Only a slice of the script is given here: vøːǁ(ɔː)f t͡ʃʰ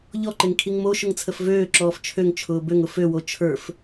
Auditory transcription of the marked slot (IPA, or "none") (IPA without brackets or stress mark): ɔː